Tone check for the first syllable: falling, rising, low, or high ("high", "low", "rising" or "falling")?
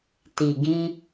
low